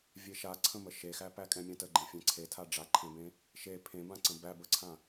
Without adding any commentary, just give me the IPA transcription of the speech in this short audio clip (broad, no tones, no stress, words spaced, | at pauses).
vʲeʃaǀʰə̃mə ʃexæ pækʼɛ̃mʲãtə ɡ͡ǃẽfʲɛ̃ǀʰetʰa ɖ͡ʐaǃʰẽbẽ | ʃe pʰẽbãǀə̃ bæbəǀʰã